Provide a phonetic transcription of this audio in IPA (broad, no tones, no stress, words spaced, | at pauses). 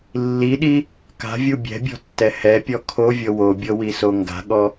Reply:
lːiɗi | ka̤vʲu bʲɛ̤bʲɔ̤tːɛ hɛpʲɔ kʰovʲɤ wobʲɤwiso ŋɡa̤ɠɔ